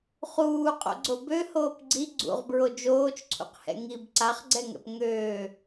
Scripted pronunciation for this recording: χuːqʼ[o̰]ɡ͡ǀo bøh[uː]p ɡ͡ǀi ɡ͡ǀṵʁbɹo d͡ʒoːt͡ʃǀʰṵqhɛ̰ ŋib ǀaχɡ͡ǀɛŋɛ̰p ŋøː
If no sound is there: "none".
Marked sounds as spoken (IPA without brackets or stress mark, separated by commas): o̰, oː